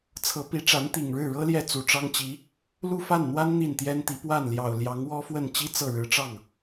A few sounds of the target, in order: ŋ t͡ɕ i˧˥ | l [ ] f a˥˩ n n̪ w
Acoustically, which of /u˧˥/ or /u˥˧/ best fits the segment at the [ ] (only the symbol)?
u˥˧